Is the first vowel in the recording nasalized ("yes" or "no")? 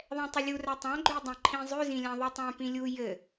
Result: yes